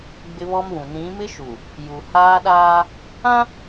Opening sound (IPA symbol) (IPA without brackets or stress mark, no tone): ɡ͡b